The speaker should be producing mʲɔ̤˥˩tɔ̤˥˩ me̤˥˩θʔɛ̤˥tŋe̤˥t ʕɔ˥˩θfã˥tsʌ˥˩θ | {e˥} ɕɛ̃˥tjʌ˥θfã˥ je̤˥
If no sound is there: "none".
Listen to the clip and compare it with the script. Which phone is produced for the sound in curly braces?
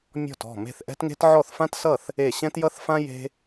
e˥˩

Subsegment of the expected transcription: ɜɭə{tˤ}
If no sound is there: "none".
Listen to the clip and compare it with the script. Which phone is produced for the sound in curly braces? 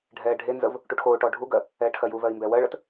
t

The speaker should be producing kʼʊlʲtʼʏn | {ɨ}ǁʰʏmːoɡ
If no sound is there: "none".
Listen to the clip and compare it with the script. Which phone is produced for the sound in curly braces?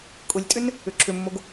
ʏ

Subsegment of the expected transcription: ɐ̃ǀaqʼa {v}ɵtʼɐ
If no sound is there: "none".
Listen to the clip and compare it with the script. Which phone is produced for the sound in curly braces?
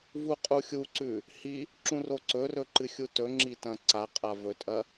v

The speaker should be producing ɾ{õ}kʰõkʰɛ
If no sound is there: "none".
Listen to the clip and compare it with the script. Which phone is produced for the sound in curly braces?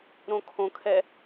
õ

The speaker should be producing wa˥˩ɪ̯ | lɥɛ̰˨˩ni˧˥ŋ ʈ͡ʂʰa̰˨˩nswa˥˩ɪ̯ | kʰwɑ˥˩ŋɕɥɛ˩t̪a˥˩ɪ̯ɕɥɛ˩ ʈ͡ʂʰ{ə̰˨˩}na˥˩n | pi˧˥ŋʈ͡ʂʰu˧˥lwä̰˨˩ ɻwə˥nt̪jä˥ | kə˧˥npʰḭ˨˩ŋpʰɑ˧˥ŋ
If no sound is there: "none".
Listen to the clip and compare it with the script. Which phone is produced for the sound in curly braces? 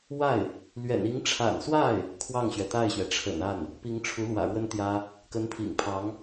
ə̰˨˩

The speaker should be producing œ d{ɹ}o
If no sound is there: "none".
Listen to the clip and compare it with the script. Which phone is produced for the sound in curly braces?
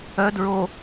ɹ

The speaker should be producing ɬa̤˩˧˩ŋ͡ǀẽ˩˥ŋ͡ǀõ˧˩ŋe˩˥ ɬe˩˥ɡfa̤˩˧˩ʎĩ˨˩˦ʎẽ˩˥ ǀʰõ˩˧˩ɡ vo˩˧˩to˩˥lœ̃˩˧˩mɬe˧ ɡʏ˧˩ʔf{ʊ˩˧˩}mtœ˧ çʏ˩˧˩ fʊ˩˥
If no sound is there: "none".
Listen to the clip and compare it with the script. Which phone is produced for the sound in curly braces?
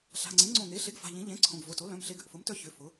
ʊ˩˥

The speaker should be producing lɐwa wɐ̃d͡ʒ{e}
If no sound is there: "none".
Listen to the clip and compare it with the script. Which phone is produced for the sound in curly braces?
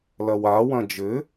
ɘ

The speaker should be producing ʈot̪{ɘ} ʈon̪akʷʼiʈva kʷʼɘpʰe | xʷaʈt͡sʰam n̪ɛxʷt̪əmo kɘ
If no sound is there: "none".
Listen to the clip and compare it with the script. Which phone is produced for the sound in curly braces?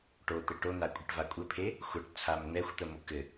ɘ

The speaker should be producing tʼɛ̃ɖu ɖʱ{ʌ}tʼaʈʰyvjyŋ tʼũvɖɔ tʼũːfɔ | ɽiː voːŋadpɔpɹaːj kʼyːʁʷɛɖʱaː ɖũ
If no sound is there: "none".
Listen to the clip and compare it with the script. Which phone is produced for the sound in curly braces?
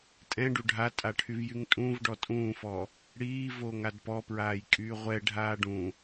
a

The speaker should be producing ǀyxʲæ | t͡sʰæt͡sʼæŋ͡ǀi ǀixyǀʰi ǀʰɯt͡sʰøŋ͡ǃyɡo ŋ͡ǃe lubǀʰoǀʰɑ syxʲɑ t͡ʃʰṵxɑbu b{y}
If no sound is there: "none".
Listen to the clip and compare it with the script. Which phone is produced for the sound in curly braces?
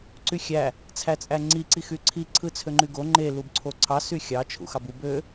ø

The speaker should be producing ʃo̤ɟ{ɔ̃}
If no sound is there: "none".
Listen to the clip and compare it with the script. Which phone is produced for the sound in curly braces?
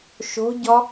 ɔ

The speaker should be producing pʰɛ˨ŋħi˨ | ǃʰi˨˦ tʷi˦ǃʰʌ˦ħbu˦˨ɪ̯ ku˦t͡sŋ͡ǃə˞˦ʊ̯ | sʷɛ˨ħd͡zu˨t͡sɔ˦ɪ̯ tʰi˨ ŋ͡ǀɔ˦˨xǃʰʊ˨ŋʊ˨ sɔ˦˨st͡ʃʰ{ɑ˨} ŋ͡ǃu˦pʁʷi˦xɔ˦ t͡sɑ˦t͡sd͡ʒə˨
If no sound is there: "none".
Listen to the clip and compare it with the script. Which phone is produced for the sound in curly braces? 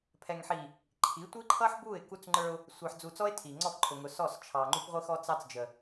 ɑ˨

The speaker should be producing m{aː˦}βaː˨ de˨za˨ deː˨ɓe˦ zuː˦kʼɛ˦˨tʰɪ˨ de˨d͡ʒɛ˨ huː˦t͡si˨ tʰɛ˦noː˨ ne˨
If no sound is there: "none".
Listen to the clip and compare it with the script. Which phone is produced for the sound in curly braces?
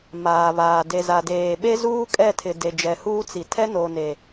aː˨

